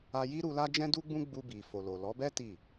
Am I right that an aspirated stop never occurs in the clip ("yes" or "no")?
yes